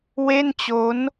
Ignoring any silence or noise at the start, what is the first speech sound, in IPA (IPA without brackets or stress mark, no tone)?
w